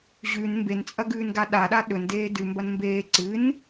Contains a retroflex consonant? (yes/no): no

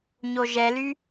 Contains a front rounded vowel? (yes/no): yes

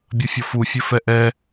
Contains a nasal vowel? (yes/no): no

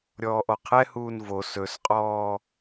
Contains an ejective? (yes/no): yes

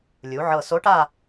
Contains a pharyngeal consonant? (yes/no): yes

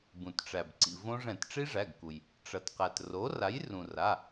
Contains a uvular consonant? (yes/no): yes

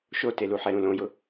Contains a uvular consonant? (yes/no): no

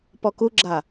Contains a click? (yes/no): yes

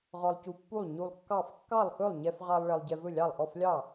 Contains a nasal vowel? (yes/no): no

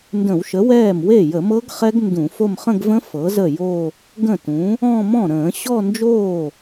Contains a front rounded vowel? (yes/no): no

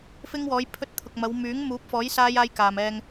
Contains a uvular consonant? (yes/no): no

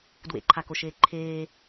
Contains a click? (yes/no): yes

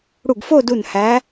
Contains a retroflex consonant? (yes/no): yes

